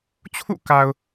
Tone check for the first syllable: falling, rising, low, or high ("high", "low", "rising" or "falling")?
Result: falling